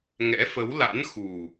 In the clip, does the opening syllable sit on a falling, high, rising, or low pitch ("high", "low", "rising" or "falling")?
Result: rising